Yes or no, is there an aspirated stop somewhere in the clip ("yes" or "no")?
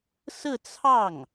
yes